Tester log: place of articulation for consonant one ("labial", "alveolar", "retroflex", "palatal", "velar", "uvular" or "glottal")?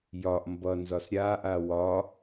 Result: palatal